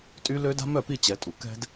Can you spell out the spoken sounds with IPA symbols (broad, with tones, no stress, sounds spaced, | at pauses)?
tʼ y˥ l ø˥ d a̤˥ m œ˥˩ p i˥˩ t͡ɕ ɛ˩˥ tʼ u˩ k ɛ̤˥ d